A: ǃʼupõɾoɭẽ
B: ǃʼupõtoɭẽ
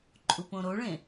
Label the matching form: A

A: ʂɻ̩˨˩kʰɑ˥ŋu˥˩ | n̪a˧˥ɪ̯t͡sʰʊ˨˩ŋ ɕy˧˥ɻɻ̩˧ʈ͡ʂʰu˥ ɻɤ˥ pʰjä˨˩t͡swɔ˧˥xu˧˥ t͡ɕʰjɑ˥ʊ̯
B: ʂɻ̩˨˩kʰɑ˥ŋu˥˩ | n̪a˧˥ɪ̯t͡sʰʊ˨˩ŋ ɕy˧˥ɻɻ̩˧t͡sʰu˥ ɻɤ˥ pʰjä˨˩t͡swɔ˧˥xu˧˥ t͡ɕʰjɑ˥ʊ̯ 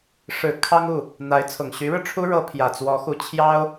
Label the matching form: A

